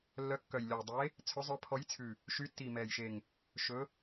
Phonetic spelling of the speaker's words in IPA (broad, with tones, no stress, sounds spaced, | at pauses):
lː œ˨˦ kː œ˨˩ j lʲ ɔ˨˩ j dˤ e˨˦ | t͡sʰ ɵ˨˦ zˤ œ˨˦ pʰ ɔ˨˦ j t͡sʰ ʉ˨˩ | ʃ y˨˦ tː i˨˩ m ɛ˨˩ j ʃ e˨˩ ŋ | ʃ ɵ˨˦